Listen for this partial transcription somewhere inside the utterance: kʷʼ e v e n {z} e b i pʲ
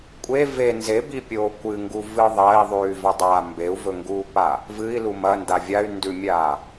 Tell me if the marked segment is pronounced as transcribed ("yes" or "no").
yes